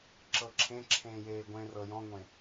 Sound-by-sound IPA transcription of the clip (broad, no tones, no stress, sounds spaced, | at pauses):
ǁ ɤ ǁʰ ẽ ǁʰ ẽː j eː ɡʷ ẽ r ɤ j ɔ̃ ŋʷ ẽ